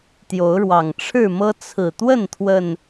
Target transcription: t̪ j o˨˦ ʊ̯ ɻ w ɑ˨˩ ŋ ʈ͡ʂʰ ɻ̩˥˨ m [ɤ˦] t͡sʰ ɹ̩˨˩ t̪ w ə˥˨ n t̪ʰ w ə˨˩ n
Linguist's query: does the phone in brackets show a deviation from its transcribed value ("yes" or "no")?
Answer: no